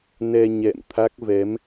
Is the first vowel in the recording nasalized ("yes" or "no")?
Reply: no